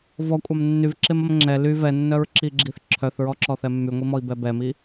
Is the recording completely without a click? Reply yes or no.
no